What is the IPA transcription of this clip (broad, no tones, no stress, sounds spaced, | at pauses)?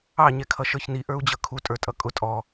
ɑ ɲ ɛ kʰ ʌ ʃ ə˞ ç n i ʔ ə˞ u̯ d͡ʑ ʌ kʰ u tʼ ə˞ tʼ ʌ kʼ ʊ tʼ ɔ